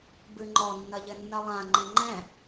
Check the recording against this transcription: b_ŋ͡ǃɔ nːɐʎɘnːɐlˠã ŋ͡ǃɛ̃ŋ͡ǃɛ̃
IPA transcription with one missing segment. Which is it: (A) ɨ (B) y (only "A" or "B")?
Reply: A